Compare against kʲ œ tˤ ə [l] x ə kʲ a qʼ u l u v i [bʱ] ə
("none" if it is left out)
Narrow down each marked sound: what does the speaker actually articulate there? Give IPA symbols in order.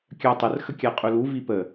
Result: r, p

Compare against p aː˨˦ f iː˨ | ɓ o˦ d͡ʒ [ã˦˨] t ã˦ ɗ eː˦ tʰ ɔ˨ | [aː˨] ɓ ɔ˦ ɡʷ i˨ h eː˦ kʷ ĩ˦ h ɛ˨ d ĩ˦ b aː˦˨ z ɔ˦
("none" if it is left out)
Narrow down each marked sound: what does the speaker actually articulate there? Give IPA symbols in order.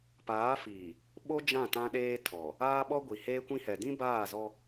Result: ã˦˨, aː˦

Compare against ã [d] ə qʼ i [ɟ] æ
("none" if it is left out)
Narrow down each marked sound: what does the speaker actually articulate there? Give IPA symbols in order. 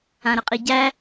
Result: ɾ, ɟ

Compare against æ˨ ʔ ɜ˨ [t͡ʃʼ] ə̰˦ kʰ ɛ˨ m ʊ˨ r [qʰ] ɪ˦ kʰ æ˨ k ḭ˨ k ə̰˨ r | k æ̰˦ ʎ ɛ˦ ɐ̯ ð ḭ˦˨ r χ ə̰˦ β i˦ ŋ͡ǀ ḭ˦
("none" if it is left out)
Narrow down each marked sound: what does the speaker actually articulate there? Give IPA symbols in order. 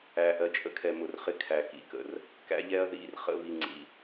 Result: t͡ʃʼ, χ

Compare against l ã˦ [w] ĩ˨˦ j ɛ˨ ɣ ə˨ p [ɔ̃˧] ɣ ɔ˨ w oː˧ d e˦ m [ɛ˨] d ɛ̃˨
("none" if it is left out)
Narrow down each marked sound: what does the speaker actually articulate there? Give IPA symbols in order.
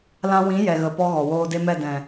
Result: w, ɔ˧, ɛ˦˨

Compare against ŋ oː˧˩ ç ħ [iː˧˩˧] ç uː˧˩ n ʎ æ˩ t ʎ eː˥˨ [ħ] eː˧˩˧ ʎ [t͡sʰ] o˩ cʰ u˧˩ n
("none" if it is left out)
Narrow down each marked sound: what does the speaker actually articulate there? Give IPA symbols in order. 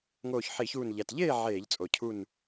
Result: i˧˩˧, ʕ, t͡sʼ

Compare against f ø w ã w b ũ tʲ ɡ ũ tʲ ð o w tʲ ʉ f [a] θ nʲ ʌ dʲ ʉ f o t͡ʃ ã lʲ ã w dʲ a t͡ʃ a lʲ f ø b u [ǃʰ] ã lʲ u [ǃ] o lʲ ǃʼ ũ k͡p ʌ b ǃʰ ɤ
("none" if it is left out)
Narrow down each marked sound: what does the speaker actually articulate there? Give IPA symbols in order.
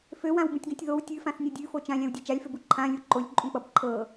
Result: ã, ǃʰ, ǃ

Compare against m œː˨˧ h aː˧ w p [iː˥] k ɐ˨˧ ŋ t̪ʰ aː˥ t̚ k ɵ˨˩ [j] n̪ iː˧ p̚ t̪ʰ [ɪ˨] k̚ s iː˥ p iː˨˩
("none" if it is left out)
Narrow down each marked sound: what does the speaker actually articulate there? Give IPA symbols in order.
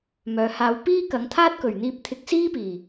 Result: iː˥, ɥ, ɪ˧

